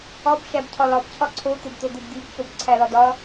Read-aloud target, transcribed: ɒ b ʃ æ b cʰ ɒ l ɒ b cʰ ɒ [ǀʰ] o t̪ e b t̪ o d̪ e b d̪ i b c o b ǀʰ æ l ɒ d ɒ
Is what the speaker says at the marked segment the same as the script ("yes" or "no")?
yes